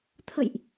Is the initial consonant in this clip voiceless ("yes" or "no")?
yes